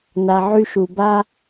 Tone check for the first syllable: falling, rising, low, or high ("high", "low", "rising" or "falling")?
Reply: low